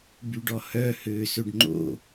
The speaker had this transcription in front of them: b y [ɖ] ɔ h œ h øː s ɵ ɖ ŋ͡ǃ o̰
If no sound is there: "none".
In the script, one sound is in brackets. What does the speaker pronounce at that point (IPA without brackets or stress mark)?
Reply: ɖ